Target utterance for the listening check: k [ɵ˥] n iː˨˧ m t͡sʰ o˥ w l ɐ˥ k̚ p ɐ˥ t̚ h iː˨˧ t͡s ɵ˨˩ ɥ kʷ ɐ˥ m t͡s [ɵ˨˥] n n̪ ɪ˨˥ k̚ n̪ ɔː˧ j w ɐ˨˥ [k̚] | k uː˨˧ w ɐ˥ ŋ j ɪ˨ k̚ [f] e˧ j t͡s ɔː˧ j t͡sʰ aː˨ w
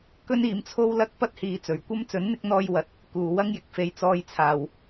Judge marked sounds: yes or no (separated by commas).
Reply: yes, yes, no, yes